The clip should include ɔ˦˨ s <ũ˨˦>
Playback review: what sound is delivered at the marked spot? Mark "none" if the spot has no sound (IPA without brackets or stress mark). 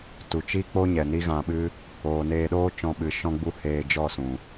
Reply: ũ˨